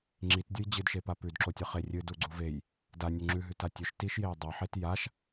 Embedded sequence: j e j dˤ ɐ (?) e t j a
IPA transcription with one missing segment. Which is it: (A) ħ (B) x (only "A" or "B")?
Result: A